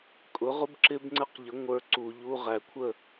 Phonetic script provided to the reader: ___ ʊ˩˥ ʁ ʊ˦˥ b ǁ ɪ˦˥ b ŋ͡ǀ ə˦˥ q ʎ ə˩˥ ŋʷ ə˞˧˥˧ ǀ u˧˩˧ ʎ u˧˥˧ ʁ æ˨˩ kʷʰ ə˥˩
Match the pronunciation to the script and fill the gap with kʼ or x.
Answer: kʼ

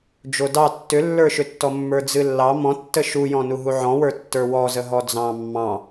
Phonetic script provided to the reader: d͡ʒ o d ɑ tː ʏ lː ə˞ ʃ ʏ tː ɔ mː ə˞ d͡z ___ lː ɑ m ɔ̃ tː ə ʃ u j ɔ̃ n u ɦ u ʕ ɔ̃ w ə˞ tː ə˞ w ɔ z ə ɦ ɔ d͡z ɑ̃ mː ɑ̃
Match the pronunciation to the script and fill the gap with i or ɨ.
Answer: ɨ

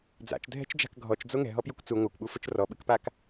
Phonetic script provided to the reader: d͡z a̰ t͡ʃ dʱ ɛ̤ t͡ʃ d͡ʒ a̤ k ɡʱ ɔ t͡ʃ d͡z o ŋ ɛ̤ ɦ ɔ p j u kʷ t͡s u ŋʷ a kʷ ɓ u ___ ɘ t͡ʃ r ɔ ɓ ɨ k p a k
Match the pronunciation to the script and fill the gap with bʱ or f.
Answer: f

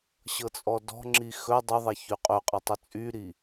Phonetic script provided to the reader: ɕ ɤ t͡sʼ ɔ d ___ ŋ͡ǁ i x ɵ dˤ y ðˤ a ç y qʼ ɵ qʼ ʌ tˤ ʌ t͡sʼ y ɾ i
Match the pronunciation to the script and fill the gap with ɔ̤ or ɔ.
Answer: ɔ̤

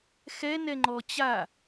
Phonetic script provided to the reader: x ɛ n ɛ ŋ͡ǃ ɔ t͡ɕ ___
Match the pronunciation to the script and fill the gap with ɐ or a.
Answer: a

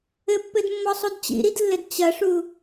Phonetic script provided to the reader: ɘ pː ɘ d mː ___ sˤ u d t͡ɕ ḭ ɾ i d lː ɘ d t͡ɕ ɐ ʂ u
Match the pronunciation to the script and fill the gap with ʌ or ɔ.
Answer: ɔ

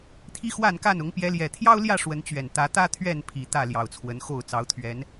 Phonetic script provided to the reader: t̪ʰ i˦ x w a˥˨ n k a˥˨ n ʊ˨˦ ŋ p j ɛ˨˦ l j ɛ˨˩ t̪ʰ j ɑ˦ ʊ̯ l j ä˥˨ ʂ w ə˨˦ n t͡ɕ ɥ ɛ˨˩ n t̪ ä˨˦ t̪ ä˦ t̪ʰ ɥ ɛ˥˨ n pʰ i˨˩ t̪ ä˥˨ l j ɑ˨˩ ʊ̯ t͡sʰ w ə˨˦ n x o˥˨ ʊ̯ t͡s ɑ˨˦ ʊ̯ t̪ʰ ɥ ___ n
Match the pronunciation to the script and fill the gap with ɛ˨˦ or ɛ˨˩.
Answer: ɛ˨˦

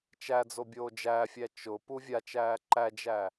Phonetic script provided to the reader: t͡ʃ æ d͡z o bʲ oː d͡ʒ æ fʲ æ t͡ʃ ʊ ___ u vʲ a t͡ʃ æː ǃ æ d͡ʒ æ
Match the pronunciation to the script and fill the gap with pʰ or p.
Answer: p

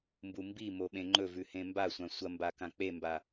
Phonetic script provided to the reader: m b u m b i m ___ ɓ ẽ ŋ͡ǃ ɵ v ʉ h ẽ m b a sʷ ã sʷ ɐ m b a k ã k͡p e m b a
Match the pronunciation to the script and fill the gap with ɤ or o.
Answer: o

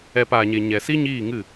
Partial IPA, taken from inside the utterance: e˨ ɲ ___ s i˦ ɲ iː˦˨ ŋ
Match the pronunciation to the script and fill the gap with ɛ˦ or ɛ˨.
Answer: ɛ˨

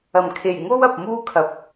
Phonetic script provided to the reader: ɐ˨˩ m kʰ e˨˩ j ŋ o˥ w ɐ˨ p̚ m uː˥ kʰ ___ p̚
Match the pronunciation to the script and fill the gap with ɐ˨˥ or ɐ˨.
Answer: ɐ˨˥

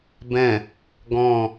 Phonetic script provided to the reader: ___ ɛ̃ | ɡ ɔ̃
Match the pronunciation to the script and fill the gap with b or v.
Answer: b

